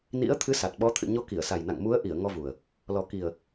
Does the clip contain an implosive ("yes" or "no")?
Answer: yes